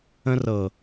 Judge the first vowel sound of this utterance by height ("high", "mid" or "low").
mid